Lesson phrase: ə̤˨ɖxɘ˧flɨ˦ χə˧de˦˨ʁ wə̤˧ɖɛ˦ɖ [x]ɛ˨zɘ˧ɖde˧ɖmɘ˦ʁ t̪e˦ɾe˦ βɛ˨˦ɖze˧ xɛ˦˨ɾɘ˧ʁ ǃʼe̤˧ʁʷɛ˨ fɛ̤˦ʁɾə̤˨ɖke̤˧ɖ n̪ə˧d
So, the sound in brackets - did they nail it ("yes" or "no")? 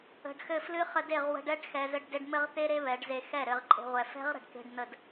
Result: yes